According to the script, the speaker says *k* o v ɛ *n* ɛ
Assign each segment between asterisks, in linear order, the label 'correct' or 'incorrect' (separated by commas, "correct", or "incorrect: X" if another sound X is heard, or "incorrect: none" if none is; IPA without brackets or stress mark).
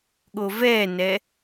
incorrect: ɠ, correct